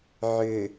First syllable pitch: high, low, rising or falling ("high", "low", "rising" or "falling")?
low